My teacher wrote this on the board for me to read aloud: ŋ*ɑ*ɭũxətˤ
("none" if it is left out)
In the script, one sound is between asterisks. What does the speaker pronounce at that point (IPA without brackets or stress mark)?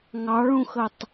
ɑ